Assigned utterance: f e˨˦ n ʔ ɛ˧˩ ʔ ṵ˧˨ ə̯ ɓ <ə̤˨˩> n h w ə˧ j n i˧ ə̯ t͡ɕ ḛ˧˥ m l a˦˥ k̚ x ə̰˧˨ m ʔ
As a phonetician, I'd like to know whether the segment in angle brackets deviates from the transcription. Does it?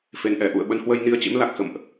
yes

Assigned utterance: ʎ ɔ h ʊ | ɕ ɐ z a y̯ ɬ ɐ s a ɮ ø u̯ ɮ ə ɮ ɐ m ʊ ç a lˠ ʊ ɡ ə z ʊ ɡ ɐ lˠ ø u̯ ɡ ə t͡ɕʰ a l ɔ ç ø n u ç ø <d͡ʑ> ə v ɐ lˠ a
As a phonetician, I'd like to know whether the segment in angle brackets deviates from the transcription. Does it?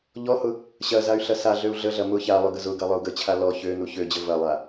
no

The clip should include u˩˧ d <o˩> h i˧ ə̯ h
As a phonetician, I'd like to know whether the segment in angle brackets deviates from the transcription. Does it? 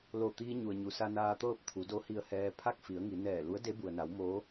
yes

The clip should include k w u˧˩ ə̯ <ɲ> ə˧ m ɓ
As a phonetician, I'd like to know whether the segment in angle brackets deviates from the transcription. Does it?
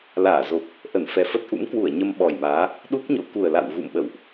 no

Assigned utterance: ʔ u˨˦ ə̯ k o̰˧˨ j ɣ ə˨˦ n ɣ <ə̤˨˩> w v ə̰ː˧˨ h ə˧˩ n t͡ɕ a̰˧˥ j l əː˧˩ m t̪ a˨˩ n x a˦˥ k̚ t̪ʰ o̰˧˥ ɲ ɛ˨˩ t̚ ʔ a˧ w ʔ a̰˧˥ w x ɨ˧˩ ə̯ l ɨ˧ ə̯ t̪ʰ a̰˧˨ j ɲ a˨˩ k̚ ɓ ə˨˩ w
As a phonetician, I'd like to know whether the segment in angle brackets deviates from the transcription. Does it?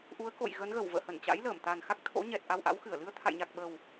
yes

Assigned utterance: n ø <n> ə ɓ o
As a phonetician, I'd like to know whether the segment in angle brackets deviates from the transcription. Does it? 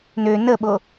no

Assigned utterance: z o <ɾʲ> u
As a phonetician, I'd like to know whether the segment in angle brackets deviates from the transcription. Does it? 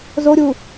no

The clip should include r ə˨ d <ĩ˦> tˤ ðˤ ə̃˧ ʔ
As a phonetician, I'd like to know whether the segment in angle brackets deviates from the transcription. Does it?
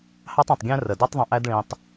yes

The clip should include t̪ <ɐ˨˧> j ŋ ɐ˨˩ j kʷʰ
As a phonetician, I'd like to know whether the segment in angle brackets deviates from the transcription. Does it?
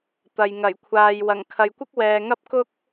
yes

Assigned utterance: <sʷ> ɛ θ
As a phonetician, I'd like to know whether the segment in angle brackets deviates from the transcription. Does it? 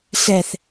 yes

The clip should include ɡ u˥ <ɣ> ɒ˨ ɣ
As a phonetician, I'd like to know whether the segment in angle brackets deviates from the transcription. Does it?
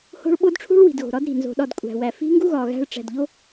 no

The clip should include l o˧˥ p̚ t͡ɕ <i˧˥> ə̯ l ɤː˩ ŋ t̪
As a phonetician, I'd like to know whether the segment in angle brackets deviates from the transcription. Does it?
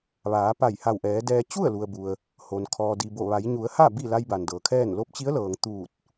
no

